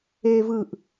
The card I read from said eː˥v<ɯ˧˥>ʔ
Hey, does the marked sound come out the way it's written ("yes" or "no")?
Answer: no